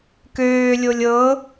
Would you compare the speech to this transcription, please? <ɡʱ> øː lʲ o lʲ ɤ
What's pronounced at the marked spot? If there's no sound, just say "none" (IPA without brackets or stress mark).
k